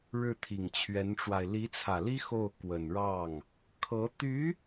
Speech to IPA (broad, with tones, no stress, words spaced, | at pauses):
ɻɻ̩˥˩t̪ʰi˨˩ŋt͡ɕʰɥɛ˧˥nʈ͡ʂwa˧ɪ̯ li˧˥t͡sʰä˨˩li˥ xo˥˩ʊ̯ kwə˨˩nɻɑ˥˩ŋ | kʰɤ˧˥ t̪y˧˥